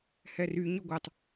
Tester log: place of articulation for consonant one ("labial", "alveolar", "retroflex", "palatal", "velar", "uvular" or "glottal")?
glottal